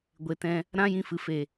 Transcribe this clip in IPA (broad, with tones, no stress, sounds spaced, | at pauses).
ɡʷ e˨ t ɛ̃˧ | ɾ ã˦ j ĩ˧ f ɨ˨ f e˨